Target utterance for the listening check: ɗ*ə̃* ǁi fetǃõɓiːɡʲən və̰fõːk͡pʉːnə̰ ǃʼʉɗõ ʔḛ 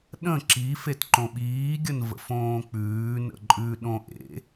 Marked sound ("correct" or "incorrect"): correct